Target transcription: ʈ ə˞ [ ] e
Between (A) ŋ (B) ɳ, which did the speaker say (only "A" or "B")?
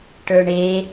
B